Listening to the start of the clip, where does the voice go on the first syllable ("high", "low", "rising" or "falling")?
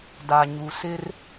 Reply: low